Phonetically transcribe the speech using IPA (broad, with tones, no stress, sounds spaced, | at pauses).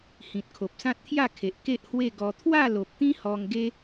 h ĩ˨ t̚ kʰ o˨ p̚ s ã˦ t̚ t̪ʰ j a˥˧ kʰ e˨ ʔ k e˦ ʔ h w e˥˧ ɡ ɔ˧ t̪ʰ w a˥˧ l o˨ p̚ t̪ ĩ˦ h ɔ˧ ŋ ɡ e˦